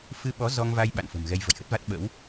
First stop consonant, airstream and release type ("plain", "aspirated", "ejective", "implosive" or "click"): implosive